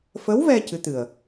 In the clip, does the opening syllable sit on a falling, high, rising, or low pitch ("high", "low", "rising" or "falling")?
rising